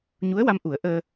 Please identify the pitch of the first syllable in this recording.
rising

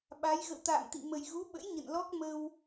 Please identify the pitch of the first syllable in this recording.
rising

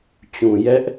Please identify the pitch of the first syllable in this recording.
low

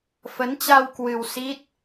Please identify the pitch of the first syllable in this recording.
rising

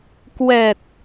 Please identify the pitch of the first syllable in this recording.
low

